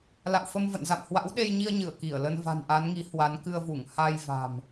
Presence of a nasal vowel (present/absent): absent